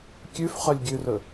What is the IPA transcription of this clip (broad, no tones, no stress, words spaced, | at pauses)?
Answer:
kʲʉfχœlʲɡʲʉrɵ